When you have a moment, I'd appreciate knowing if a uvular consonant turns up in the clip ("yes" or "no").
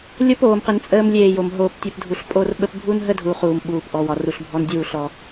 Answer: yes